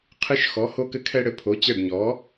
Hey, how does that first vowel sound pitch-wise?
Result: high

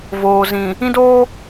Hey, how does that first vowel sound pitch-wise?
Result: low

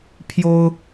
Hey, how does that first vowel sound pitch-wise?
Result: high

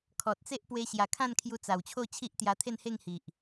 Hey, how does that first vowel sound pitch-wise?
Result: low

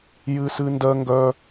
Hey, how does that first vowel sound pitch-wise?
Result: high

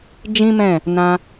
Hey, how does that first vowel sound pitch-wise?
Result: high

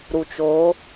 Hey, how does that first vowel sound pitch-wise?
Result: low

